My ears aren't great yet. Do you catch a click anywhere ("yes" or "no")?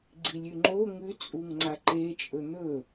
yes